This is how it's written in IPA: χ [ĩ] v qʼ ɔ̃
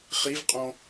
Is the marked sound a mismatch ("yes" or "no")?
yes